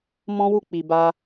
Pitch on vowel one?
high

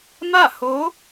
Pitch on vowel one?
falling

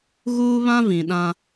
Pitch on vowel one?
high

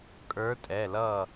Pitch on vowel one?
rising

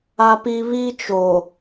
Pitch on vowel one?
high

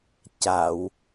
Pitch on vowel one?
low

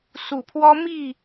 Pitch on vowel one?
low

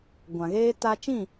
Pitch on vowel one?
low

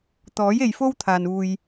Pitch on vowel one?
rising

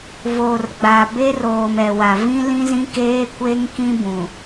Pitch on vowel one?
low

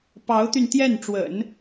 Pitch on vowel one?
rising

